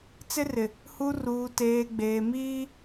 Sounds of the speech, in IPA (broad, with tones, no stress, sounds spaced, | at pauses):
t͡s ɪ˦ r ɪ˨ | h u˦ r uː˨ t eː˨ ɡ͡b eː˨ m iː˦